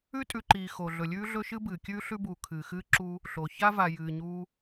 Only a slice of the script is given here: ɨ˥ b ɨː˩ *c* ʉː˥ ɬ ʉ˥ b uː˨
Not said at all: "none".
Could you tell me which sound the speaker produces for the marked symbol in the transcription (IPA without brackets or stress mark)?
kʲ